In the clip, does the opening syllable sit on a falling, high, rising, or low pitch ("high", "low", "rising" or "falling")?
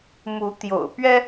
rising